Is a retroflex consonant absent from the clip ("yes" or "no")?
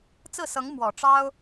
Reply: no